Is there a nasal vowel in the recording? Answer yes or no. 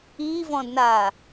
yes